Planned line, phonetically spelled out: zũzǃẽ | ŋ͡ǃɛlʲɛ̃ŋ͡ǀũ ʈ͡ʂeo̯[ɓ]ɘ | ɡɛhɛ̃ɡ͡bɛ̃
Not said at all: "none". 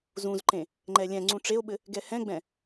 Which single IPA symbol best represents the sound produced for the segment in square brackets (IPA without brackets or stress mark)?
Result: ɓ